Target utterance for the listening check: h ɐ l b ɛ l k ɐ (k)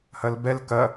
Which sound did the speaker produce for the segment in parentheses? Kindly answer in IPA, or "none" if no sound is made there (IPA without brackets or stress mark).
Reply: none